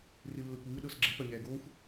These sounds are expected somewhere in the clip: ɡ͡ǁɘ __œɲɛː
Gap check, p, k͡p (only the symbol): p